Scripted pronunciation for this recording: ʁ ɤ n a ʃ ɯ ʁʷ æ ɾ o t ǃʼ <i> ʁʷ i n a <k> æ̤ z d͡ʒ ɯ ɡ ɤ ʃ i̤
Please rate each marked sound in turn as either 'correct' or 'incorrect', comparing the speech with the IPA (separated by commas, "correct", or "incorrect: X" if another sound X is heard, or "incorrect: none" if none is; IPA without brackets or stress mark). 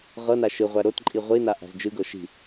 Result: correct, incorrect: ʔ